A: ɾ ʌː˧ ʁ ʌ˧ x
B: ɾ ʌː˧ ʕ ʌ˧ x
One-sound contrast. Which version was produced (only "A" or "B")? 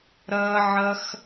B